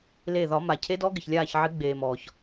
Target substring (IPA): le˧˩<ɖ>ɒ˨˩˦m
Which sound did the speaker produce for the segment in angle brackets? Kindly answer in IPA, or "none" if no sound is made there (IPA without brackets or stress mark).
ð